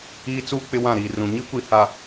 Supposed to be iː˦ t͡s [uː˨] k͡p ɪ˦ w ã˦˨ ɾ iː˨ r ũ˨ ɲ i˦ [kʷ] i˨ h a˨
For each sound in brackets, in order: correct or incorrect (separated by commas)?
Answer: incorrect, correct